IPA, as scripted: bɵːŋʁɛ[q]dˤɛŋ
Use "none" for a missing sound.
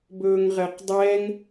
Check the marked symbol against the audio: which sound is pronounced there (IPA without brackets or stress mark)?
q